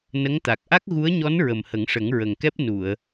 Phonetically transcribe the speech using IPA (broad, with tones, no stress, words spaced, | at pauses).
nə˧˥ŋt̪a˨˩k̚ ʔa˦˥k̚ɣu˧˥ə̯ɲɔ˧˥n ɹə˨˩mhə˨˩˦ŋʂə˨˩˦ŋ ɹə˨˩ŋkɛ˦˥p̚ nu˨˩˨ə̯